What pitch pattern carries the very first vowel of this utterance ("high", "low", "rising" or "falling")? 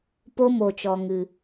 high